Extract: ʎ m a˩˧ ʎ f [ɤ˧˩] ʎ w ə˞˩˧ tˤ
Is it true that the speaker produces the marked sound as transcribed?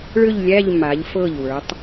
yes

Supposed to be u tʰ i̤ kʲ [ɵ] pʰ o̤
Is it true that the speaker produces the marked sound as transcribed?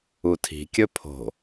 yes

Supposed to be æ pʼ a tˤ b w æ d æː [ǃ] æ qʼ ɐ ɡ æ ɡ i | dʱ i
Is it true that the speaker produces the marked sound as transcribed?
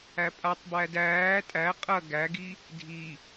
no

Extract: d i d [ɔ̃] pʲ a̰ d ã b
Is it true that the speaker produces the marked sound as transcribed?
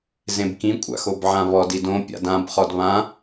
no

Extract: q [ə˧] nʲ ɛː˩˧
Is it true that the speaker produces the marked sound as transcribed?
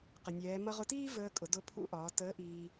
no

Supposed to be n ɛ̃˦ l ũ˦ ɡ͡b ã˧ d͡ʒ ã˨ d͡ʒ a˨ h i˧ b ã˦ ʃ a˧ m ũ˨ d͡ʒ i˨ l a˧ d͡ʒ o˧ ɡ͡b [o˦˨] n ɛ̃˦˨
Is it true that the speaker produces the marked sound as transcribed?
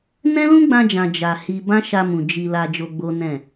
no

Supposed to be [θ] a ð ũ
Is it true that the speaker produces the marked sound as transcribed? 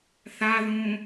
yes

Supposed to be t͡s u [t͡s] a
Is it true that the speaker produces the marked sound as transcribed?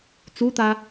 no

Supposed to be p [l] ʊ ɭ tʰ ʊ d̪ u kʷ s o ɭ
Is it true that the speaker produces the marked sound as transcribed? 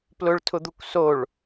yes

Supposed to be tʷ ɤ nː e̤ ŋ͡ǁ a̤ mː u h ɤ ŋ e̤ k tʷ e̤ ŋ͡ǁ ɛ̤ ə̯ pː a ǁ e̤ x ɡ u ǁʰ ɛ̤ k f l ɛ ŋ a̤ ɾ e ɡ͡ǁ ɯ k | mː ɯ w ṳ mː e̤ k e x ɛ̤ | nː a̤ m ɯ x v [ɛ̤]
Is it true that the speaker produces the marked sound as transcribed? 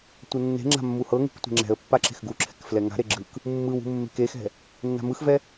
no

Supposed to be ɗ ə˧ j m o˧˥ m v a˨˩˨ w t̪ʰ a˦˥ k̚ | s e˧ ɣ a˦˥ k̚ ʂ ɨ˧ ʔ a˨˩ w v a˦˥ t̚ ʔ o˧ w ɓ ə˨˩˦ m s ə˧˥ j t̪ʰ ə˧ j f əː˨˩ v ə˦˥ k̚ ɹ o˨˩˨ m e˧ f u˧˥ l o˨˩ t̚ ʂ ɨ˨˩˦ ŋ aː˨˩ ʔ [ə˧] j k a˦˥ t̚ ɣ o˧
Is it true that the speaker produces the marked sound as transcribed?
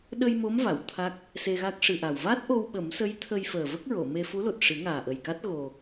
no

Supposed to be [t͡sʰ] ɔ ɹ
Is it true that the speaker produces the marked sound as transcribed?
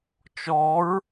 no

